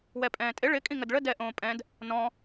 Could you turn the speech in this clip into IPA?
w ɛ pʼ ɛ̃ː tʼ ɪ ɭ ɪ kʼ ĩ ŋ ə d ɭ ə d ɛ ʔ õː pʼ ɛ̃ d | n ɔ̃

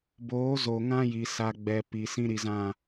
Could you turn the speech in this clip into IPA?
b oː˨˦ z o˨ ŋ ã˦ j i˨ s a˨ ɡ͡b ɛ˨ p i˨ s ĩ˦ ɾ i˨ z ã˦˨

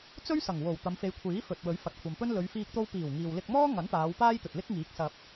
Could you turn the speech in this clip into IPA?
t͡s ɵ˥ ɥ s ɐ˨˩ ŋ w o˨˩ w t̪ ɐ˨˧ m f e˨˧ j kʷʰ iː˨˥ f ɵ˨ t̚ w ɵ˨˥ ɥ f ɐ˨ t̚ kʷʰ ɐ˨ m p ɵ˥ n l ɵ˨˧ ɥ f iː˧ k̚ t̪ o˧ w p iː˨˩ w ŋ iː˨ w l ɪ˧ k̚ m ɔː˥ ŋ ɐ˨˥ n p aː˨˧ w p aː˥ j t̪ ɵ˨ t̚ l ɪ˥ k̚ ŋ iː˨˥ k̚ s ɐ˨ p̚

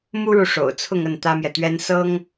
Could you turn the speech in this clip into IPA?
m u˥ ɻ u˨ ʂ o̰˨˩ ʊ̯ t͡sʰ ʊ˥˧ ŋ ə˥˩ n t̪ ä˥ m j ɛ˨ t̪ ɥ ɛ˥ n s ɤ˥ ŋ

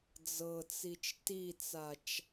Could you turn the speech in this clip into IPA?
d͡z ɤ t͡s i t͡ʃ t i t͡s a t͡ʃ

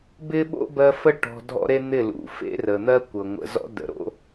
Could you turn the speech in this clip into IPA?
b ɪ˦ ɓ o̰˦ b ɜ˧ f ə˦ ʈ ɔ̤˧ dʱ ɔ̰˦ ɾ e˦ n̪ ɪ˦˨ l ṵ˨ f ḛ˦ r ə˨ n̪ ɜ˦ kʷ ɤ˨ ŋʷ ə̰˨ z ɔ̰˧ d ə̰˨ ɾ o̰˦

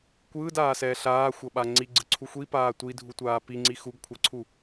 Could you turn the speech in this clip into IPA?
kʷ ɯː d aː s ɛː ɬ aː xʷ ʌ ɓ a ŋ͡ǀ i ɡ͡ǀ ɯ ǀʰ u xʷ i p aː tʷ i dʱ u tʷ aː p i ŋ͡ǀ i x u ɡ kʷʰ ʌ ǀʰ u

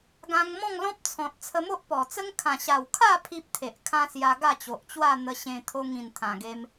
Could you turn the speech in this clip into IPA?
ɡ ã˧ ŋ m ɔ̃˥˧ ŋ l ɔ̃˦ p̚ t͡sʰ ɔ̃˨ t̚ t͡sʰ ə˧ m o˦ ʔ p ɔ˨˩ t͡s ə˦ ŋ kʰ ã˨˩ ɕ a˨˩ w kʰ a˥˧ pʰ i˦ p̚ t̪ʰ e˨ ʔ kʰ ã˦ s j a˧ ɡ a˥˧ t͡ɕ o˨ ʔ t͡ɕ w a˥˧ n̪ ə˧ ɕ ẽ˧ t̪ʰ o˧ ŋ ĩ˨˩ n t̪ʰ ã˨˩ ɡ e˧ m

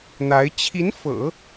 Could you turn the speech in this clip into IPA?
n̪ a˧˥ ɪ̯ t͡ɕʰ i˧˥ n f ɤ̰˨˩˦

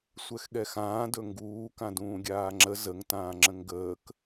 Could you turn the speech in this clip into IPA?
sʷ ɛ x ɠ ɛ x ãː d ɵ ŋ ɡ uː k ã d ũː ɡʲ aː ŋ͡ǁ ə z ə ŋ t ãː ŋ͡ǁ ə̃ ŋ ɡ əː k

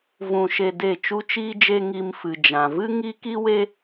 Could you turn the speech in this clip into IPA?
v ũ˧ ʃ e˧ d e˦˨ t͡ʃ u˧ t͡ʃ iː˧ d͡ʒ e˧ ŋ i˧ m f ɨ˨ d͡ʒ ã˨ v ɨ˦ ŋ i˦ k i˦ w e˦

